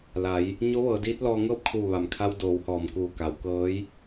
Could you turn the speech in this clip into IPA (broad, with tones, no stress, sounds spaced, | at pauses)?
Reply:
l a˩˧ j | ɲ o˧˥ ʋ ɤː˩˧ d iː˧˥ t̚ l ɔː˧ ŋ ɤː˥˨ p̚ kʰ uː˧˩ ʋ a˩ m kʰ a˧ w d oː˩˧ w h ɔː˩ m k uː˧˩ k a˩˧ w k ɤː˧˥ j